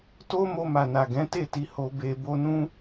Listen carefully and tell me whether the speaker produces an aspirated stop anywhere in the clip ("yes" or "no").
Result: no